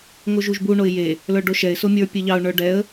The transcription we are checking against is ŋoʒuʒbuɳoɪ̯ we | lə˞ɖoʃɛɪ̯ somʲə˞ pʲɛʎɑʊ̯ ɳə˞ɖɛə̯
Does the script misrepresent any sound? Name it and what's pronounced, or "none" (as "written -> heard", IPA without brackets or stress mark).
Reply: w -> j